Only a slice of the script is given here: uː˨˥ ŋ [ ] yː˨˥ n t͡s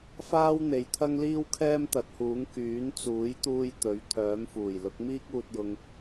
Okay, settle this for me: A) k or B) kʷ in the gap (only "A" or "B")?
A